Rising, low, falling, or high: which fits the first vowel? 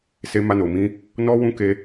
high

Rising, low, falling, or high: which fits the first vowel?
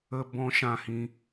high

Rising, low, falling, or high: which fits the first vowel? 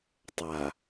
low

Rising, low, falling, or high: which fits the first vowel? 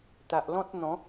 low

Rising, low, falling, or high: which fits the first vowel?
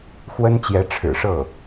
high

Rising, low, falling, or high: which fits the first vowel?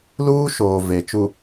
high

